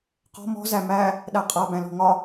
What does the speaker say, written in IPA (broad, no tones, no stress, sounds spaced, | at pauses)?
q ɔ̤ m ɔ̤ z æ m æ | ɗ æ qʼ a b æ̃ l ɔ̤ ŋ ɒ